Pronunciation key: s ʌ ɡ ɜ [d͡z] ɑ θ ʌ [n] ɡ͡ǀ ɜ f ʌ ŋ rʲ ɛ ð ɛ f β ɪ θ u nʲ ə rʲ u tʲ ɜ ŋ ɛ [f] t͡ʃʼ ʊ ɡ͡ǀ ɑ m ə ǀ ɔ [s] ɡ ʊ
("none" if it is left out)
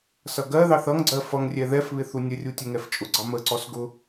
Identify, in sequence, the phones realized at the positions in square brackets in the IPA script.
ð, ŋ, f, s

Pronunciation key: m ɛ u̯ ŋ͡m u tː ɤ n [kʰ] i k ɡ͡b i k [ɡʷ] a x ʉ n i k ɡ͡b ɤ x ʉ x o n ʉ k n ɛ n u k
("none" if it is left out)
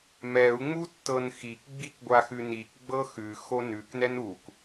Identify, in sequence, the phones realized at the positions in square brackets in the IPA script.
x, ɡʷ

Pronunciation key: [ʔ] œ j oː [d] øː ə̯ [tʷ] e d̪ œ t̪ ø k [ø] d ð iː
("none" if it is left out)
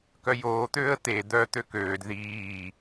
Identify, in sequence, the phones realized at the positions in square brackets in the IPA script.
k, t̪, t̪, øː

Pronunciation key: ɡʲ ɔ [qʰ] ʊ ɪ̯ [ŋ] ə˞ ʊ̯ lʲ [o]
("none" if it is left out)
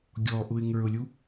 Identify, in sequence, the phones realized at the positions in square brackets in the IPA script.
ʔ, ŋ, u

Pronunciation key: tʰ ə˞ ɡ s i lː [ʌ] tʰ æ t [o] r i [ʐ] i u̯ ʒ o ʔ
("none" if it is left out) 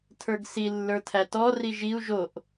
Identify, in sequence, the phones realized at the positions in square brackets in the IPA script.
ə˞, ɔ, ʒ

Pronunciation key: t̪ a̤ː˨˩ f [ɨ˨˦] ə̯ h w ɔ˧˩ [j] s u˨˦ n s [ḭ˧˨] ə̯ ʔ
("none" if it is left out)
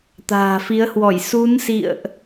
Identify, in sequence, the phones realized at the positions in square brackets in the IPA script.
i˨˦, j, ḭ˧˨

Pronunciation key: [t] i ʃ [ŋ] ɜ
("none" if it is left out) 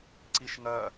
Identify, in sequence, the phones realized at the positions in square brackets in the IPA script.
ǀ, ŋ

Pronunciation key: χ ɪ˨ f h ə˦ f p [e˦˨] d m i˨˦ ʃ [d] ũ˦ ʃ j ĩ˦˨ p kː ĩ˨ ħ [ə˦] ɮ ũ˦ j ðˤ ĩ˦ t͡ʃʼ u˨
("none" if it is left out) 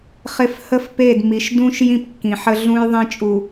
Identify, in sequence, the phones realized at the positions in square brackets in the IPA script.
e˦˨, d, ə˦

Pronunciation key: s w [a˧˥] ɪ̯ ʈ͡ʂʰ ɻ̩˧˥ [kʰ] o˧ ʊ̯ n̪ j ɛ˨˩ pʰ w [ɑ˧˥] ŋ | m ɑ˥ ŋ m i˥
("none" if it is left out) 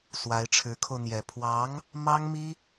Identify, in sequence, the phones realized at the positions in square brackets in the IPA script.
a˧˥, kʰ, ɑ˧˥

